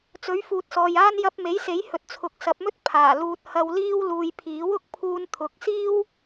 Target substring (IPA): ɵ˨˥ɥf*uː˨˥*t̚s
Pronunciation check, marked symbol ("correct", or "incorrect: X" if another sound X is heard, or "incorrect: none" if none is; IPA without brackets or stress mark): incorrect: uː˨